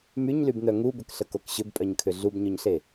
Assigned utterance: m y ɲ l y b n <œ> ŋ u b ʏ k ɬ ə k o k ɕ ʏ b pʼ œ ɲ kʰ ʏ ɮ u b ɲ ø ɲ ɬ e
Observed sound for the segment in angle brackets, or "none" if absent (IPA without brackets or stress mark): œ